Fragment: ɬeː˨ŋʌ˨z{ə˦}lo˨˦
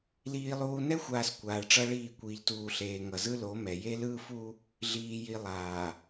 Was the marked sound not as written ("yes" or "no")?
yes